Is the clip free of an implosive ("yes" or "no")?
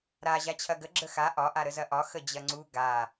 yes